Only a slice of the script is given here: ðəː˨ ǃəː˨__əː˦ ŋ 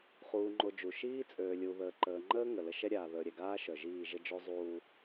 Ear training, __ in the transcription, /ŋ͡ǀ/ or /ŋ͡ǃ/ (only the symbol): ŋ͡ǃ